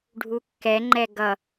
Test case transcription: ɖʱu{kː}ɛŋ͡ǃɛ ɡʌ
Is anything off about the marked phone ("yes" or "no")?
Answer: no